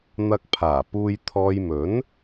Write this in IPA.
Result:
n̪ ɐ˧ k̚ pʰ aː˨˩ p uː˨ j t̪ʰ ɔː˨ j m ɵ˨˥ n

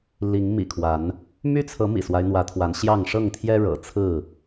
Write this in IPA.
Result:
l i˨˦ ŋ m ḭ˨˩ kʰ w a˨˦ n | m y˦ t͡sʰ ɤ˨˦ m ḭ˨˩ s w a˦ ɪ̯ n̪ w ä˨˦ t̪ʰ w a˨˦ n ɕ j ɑ˥˨ ŋ ʂ ɤ˥˨ ŋ t̪ʰ j ɛ˦ ɻ ɤ̰˨˩ t͡sʰ ɹ̩˥˨

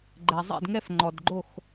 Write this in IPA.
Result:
ɡ͡ǃ ɛ˩ zˤ ɛ̰˥˨ d ŋ ɛ˥˨ f ŋ͡ǃ ɔ˩ d ɡ͡ǃ o˥˨ x

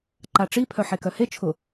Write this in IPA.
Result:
ǃ a ʈ͡ʂ i pʰ œ ħ e k œ h e t͡ʃʰ ʊ

